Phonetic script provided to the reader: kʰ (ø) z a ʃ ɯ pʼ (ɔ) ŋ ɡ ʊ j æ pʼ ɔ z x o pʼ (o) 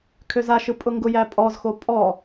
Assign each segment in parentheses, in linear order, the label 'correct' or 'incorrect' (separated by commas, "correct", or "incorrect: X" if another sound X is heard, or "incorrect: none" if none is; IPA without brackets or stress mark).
correct, incorrect: ʊ, incorrect: ɔ